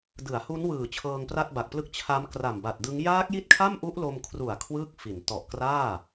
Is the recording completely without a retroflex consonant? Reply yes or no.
yes